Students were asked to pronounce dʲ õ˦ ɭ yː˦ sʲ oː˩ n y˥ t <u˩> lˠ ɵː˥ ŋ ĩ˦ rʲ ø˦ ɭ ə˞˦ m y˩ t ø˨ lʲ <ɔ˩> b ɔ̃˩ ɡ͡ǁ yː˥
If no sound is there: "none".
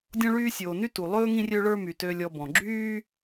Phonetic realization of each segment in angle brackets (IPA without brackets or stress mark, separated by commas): u˩, ɔ˨